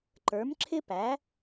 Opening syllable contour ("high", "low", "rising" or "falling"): rising